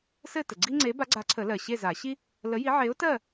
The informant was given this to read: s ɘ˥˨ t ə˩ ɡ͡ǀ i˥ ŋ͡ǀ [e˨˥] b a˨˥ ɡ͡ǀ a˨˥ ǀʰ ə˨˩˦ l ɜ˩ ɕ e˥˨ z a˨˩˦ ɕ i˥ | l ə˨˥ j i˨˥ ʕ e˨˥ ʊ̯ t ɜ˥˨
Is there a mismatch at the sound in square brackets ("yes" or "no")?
no